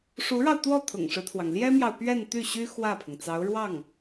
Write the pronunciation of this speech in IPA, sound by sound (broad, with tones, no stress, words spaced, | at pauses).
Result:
ʂu˧˥ɻɑ˧ʊ̯t̪wɔ˥˩ t̪ʰʊ̰˨˩ŋʂɻ̩˦t̪ʰwɑ˩ŋ ljɛ˥mjɑ˨ʊ̯ pɥɛ˥˧nt̪y˥˩ɕy˥ xwä˥˩pʰʊ˩ŋt͡sɑ˧˥ʊ̯ɻwɑ˥˩ŋ